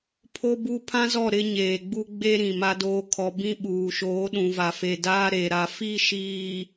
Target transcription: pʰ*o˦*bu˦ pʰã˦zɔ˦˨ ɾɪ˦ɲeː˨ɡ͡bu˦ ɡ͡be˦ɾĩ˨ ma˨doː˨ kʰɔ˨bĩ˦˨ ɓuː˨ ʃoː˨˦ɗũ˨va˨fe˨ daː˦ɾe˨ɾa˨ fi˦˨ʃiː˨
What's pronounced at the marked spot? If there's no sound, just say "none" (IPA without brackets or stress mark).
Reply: o˦